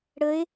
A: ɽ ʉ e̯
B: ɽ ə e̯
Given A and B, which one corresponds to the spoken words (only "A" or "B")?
B